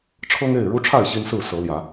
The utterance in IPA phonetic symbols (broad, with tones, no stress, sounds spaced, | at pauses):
ʈ͡ʂʰ ɤ˦ ŋ e˥˨ ɪ̯ ɻ u˦ ʈ͡ʂʰ a˥˨ ɪ̯ ɕ i˦ n s ɹ̩˥˨ s ɤ˨˦ l j ä˨˦